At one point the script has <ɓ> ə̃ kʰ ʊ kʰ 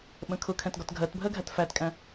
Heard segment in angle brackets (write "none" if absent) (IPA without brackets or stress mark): ɓ